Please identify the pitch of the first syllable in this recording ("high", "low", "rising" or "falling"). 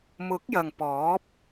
rising